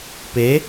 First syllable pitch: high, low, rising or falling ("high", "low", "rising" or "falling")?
rising